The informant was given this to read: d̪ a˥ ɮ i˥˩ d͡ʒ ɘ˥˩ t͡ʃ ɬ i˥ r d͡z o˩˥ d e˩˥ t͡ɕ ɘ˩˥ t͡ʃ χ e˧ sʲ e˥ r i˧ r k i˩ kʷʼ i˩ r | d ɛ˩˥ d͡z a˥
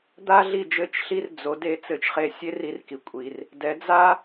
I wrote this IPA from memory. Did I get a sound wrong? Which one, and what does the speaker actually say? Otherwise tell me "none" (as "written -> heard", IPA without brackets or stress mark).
t͡ɕ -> t͡s